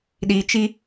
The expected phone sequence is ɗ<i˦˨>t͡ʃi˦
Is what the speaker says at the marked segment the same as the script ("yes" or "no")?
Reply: no